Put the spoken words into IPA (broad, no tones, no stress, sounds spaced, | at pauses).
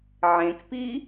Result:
ʕ ẽ k p i